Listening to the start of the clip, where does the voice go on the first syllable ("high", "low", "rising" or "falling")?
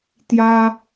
high